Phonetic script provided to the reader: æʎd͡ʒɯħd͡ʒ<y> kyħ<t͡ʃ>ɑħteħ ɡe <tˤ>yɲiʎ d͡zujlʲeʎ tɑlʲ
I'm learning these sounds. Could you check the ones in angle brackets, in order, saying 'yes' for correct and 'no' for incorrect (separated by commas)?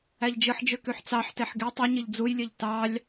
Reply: no, no, yes